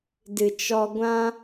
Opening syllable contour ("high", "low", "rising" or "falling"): low